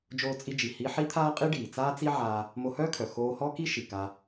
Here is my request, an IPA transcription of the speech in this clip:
d͡ʒoː˧t͡sʼi˧d͡ʒi˩ hi˧ ħi˥t̪ʰaː˥ qʼi˥ɖiː˩ t͡saː˥t͡si˥ʕaː˧ | mo˧hœː˥kʰœ˩ xoː˧hɔ˥ki˥ ʃi˩ka˧

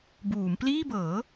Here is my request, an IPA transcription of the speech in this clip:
buː˩˦mpliː˥˩ bɤː˩˦

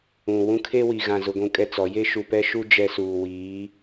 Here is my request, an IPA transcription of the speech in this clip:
ũ˨ wũ˦kʰe˦wi˨ɣã˨ zʊ˦ɡʷũ˦kʼɛ˦t͡sɔ˨˦ je˦ʃu˨pɛ˦ʃu˦ d͡ʒɛ˦suː˨ wiː˨˦

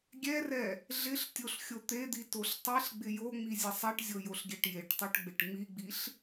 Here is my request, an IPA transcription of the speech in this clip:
ɡʲɛrɛ | ɮɪɬ tʲoɬxʲot̪ed̪i toɬtˤeɬɡ͡bɪ joŋ͡mi zʲesˤɛʈzʲo joɬɡʲɛʈjeʈtˤoʈ ɡ͡bɪʈŋ͡miɡ͡biɬ

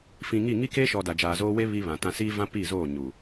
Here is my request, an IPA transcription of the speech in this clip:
fĩ˨ŋi˦˨ ŋi˦ke˦ʃɔ˨ da˨d͡ʒaː˨zoː˦ we˦ βi˦βã˨tã˦ siː˦vã˦ pi˦˨zoː˦˨ ɲu˨

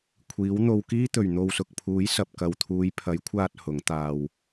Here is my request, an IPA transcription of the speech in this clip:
kʷʰiː˨˥wn̪o˧wkiː˥t̪ɵ˨ɥ n̪o˨wsʊ˨k̚ pʰuː˨˥jsɐ˨p̚kɐ˨wt̪ʰuː˨˧j pʰɐ˨˥jkʷʰaː˧t̚ hʊ˨˥ŋt̪aː˧w

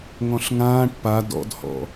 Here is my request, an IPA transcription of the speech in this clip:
ŋɔ̃ɬŋãːʈ pa dɔ̰dhɔ̰

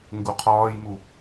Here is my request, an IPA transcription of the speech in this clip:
ŋɡuqʰɒːjmu

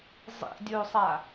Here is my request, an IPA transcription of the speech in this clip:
zˤḭdʲosˤa

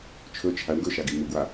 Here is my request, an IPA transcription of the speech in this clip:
t͡ʃʰɵ t͡ʃʰaɳ ɡɵʃaɡi muɡwa

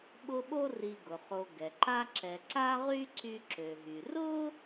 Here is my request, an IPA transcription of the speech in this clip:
ɓʊ˦ɓo˥ ri˨ɡʊ˩ χo˨ ɡɛ˩ǃa˦ǁɛ˨ ǀa˦ʁy˦ ǀy˦ǁø˨ɦy˨ rʊ˥

